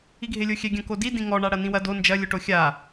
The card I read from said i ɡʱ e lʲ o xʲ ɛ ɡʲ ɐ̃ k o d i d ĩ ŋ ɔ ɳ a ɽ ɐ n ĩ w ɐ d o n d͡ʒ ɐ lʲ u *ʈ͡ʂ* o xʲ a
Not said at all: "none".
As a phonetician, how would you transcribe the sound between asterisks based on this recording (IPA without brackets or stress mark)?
ʈ